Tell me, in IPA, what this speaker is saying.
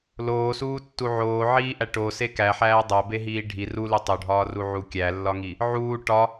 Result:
l oː s uː tː u ʕ oː ʕ iː ʔ æ ʈ o s e k æ ħ æː dˤ æ b e ɦ iː ɖʱ i r u l u tˤ o ɖʱ ɒː r u ʕ u kʲ æ lː ɒ ŋ i | ʕ uː ʈ ɒ

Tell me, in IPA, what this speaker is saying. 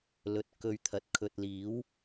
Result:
l ɵ˨ t̚ k ɵ˧ ɥ t̪ʰ ɐ˨ t̚ kʰ ɵ˨ t̚ l iː˨˥ w

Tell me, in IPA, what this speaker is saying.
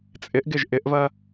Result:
t͡sʼ ɪ ʔ ɡ ɪ ʒ ʔ ɪ ʔ v ɐ

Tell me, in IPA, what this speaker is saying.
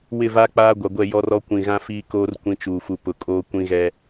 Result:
w ɪ˦˨ v a˦ k͡p aː˦ ɡʷ a˨ ɡʷ ɛ˦˨ j ɔ˦ r ɔ˦ kʷ ĩ˨ ɣ ã˦ f iː˦ k oː˦ r kʷ ĩ˦ t͡ʃ uː˨ f u˨ p ʊ˨ kʼ oː˦ kʷ ĩ˦ ɣ ɛ˦

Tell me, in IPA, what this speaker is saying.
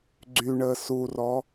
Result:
ɡ͡ǀ y ɳ əː s u r ɔ

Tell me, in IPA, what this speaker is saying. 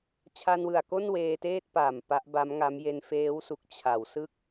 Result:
t͡ɕʰ a˧ n w ɯ˨˩ a̯ k o˥˩ n w eː˧ t eː˥˩ t̚ p aː˨˩ m p a˦˥ ʔ b a˦˥ m ŋ a˦˥ m j e˧ n f eː˦˥ w s u˨˩ k̚ t͡ɕʰ a˩˦ w s ɯ˥˩ k̚

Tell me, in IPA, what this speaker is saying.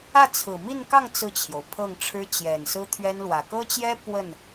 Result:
ä˥˩ t͡sʰ ɹ̩˨˩ m i˥˧ n k ɑ˥˧ ŋ t͡s ɹ̩˥˩ t͡ɕʰ j o˩ ʊ̯ pʰ ɤ˥˩ ŋ ʈ͡ʂʰ ɻ̩˥ t͡ɕ j ɛ˨˩ n s ɹ̩˥ t̪ʰ ɥ ɛ˥ n l w ä˨˩ k ɤ˥ t͡ɕ j ɛ˥ p w ə˥˩ n

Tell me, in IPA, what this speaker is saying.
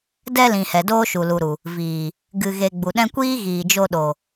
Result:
d ɛ˧ l ĩ˨ h ɛ˨ d oː˦ ʃ u˨ l u˨ ɾ u˨ | v iː˨ | ɡ ɨ˨ ɣ e˨ ɡ͡b u˨ ɗ ɛ̃˦ kʷ iː˦ ɣ iː˨ d͡ʒ o˧ ɗ o˨

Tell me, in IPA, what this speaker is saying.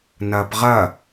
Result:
n ɐː p ʁ ɐ

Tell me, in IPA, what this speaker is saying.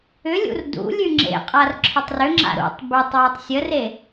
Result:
ʏ lʲ ṵ r d ṵ lʲ ʉ ŋ͡ǁ ḛ qʼ a r ǁʰ ʏ tˤ r ʏ ŋ͡ǁ a̰ ɾ ṵ tˤ b ʏ tˤ w ɔ tˤ sʲ ə r e

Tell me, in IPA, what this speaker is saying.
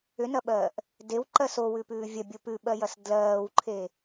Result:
ʏ n ɐ ɓ ɜː ʔ | d e w ǃ ɜ s o w ʉ p ʉː vʲ ɐ bʲ o p ʉ ɓ ɜ j ɐ s d l ɜː w ǃʰ e

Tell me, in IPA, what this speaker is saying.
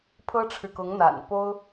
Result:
pʰ ɤ˥ ʈ͡ʂʰ ɻ̩˨ k ʊ˧˥ ŋ n̪ a̰˨˩ n p o˥ ʊ̯

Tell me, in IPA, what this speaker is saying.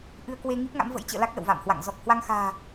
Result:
ʔ ɨ˧ ə̯ k w e˧ ŋ i˦˥ p̚ ŋ a̰˧˥ m v ə̰˧˥ j t͡ɕ ə̰ː˧˨ l a˦˥ k̚ l ə̰˧˨ w v a̰˧˨ m h w a̰˧˨ ŋ z ɔ˨˩ k̚ h w a˧ ŋ x a̤ː˨˩

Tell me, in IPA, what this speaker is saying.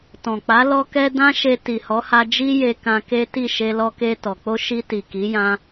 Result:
t ɔ̃˨ k͡p a˨˦ l ɔ˦ k ɛ˦ d ã˦ ʃ e˧ t i˨ h ɔ˨˦ h a˧ d͡ʒ i˦ j e˧ k ã˧ k e˦ t i˦˨ ʃ e˧ l ɔ˧ k e˧ t ɔ˨ k͡p o˧ ʃ i˧ t i˨ k i˨˦ j ã˧

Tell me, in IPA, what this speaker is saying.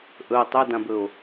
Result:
ʔ ɵ tˤ ɵ d ã b ɵ o̯

